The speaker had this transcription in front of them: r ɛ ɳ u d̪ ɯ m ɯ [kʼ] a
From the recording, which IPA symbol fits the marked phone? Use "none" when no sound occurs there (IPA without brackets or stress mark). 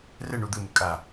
kʼ